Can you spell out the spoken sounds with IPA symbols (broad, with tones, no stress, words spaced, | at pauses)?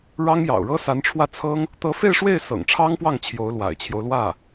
ɻɑ˥ŋjɑ̰˨˩ʊ̯ɻɤ˥ sa˧˥nʈ͡ʂʰwä˥˩t͡sʰɤ˥ŋ | t̪ɤ˧˥fe˥˧ɪ̯ʂwe˥˩ɪ̯ sɤ̰˨˩ŋʈ͡ʂʰɑ˥ŋpwɑ˥˩ŋ t͡ɕʰjo˧˥ʊ̯lwa̰˨˩ɪ̯t͡ɕʰjo˦ʊ̯ lwä˥˩